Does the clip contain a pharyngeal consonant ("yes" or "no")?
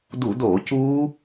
no